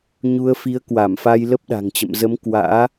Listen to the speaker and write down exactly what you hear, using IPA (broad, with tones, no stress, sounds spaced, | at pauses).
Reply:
ɲ u˧ ə̯ f i˨˦ ə̯ k w a˧˩ m f a˧ j l ə˦˥ p̚ ɗ a̤˨˩ ŋ t͡ɕ ə̰˧˨ m z ə˨˦ m k w a̰ː˧˥